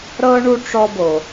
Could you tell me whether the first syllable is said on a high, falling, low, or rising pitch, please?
high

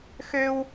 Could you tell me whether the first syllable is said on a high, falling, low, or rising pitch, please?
high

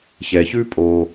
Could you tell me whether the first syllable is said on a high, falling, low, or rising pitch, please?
low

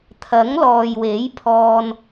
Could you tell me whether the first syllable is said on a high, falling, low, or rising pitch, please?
rising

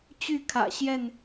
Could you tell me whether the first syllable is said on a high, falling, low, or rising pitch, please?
falling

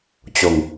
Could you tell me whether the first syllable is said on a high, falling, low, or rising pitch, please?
low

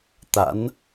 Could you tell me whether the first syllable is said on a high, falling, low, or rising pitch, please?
rising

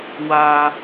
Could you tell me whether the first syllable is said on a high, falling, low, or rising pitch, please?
high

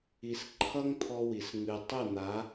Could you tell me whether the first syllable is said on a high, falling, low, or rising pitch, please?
low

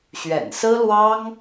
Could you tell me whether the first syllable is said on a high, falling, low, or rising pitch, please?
low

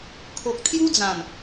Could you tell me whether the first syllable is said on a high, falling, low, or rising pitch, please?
low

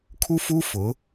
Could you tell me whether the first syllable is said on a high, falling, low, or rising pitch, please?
high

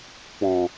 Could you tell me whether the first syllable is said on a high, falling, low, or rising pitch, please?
low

